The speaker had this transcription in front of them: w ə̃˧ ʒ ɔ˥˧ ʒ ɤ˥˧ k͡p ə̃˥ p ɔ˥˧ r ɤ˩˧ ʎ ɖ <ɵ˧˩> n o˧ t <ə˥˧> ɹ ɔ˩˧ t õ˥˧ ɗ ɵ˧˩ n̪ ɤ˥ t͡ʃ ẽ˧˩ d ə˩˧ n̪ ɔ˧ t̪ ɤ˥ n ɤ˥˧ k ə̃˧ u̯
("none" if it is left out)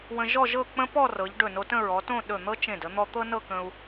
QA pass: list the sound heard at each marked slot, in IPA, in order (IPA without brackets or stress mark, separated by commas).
ɵ˧˩, ə̃˥˧